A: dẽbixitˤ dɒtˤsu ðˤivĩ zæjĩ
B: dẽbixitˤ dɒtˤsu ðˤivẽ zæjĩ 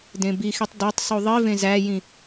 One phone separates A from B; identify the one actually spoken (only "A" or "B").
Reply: B